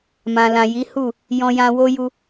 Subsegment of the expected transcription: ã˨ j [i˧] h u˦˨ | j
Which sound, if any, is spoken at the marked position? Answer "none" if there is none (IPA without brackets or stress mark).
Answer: i˨˦